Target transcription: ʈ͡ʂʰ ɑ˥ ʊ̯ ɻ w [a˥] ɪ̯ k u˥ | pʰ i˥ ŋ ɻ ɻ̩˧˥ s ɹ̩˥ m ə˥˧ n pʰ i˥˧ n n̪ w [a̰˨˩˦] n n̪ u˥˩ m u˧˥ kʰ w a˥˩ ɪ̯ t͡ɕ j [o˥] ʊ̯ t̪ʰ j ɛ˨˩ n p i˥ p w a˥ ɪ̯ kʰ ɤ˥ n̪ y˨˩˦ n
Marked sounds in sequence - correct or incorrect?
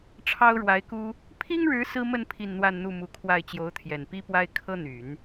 incorrect: a˧˥, incorrect: a˥˧, incorrect: o˧˥

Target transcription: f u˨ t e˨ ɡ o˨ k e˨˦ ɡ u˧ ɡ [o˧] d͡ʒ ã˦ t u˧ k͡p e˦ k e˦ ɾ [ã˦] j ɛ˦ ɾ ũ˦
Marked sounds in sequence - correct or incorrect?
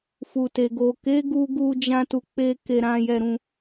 incorrect: u˧, correct

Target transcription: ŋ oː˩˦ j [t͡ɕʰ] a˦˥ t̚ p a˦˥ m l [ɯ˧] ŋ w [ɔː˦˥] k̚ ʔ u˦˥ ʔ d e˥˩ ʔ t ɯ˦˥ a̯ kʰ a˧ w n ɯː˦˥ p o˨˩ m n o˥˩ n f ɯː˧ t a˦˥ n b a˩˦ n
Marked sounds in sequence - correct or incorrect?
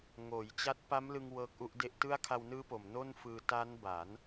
incorrect: t͡ɕ, correct, incorrect: ɤː˦˥

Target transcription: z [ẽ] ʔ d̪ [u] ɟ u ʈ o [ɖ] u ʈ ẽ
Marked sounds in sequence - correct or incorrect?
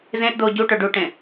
correct, incorrect: o, correct

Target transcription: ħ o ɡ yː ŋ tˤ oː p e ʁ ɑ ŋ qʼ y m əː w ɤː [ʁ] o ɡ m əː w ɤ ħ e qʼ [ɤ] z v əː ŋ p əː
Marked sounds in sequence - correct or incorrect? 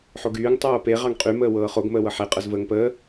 incorrect: χ, correct

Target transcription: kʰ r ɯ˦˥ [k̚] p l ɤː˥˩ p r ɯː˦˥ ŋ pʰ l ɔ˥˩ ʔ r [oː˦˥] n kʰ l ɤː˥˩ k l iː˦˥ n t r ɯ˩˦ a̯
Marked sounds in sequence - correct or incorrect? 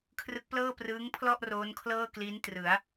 correct, correct

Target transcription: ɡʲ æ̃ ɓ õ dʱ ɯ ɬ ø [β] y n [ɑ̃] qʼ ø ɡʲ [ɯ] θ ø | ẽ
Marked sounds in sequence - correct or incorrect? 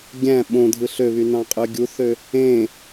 correct, correct, incorrect: u

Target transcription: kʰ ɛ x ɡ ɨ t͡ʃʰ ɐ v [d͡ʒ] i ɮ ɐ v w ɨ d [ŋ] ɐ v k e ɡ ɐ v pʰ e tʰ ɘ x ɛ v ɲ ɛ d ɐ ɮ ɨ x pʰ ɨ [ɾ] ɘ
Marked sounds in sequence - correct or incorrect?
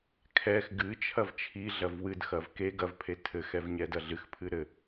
incorrect: t͡ʃʰ, incorrect: x, correct

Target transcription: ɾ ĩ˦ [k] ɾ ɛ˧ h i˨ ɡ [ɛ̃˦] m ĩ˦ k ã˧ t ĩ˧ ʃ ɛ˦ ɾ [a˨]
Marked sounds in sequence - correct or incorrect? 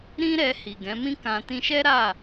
incorrect: none, incorrect: ɛ̃˨˦, incorrect: a˦˨

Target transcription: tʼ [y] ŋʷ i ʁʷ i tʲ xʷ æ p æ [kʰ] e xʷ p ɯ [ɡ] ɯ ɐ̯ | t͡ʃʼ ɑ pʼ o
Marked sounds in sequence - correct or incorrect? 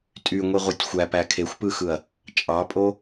correct, correct, incorrect: x

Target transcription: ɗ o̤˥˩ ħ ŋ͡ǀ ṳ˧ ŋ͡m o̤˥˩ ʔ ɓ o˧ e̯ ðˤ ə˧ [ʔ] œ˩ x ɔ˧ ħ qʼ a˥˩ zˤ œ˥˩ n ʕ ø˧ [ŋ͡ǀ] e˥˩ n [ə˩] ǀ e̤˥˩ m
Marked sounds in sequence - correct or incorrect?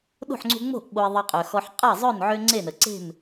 incorrect: qʼ, correct, correct

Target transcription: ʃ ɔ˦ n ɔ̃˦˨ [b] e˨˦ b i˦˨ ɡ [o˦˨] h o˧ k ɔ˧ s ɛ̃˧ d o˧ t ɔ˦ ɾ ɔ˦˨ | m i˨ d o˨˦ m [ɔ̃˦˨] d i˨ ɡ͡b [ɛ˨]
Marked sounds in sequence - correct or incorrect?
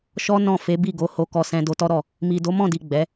incorrect: f, incorrect: o˨˦, correct, incorrect: ɛ˨˦

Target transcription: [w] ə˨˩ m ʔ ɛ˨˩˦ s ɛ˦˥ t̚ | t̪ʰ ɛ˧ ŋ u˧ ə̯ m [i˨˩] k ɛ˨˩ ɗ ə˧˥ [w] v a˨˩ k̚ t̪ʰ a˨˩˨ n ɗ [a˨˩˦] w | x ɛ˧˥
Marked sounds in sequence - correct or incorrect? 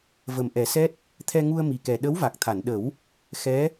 incorrect: v, correct, correct, incorrect: ə˨˩˦

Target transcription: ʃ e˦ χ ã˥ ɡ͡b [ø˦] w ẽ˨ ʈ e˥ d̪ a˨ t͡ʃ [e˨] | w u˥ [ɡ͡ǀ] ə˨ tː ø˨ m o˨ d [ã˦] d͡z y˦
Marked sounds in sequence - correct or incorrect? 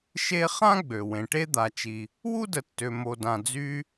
incorrect: ø˩, incorrect: i˨, incorrect: d, incorrect: ã˨

